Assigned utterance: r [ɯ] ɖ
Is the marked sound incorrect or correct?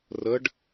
incorrect